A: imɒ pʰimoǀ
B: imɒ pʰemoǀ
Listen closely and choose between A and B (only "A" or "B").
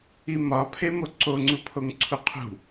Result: B